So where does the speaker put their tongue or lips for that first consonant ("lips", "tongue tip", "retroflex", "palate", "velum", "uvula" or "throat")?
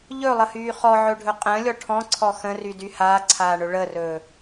palate